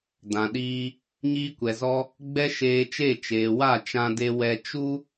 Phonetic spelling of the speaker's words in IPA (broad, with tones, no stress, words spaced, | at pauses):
dã˨ɗiː˧ | ɲiː˧kʷɛ˨zɔ˧ | ɡ͡bɛ˦ʃeː˧t͡ʃe˦˨ t͡ʃeː˨ wa˦˨t͡ʃã˧de˧ wɛ˧ t͡ʃu˦